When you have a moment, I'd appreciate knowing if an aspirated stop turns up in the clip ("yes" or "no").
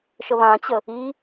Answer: no